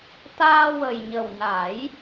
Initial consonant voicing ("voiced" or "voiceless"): voiceless